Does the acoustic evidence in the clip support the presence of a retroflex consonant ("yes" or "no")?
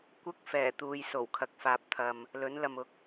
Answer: no